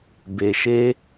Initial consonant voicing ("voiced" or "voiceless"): voiced